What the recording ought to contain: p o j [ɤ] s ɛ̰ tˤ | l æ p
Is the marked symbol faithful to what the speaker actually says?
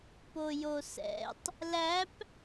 no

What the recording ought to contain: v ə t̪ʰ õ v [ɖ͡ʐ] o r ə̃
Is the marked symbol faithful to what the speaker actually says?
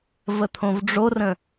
yes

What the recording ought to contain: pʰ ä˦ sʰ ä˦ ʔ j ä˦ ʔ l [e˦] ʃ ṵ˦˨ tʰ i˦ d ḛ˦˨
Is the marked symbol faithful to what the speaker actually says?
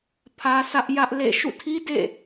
no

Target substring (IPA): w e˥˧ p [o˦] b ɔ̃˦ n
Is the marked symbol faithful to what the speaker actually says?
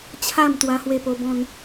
yes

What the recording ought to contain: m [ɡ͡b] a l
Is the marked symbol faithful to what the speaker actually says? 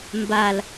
no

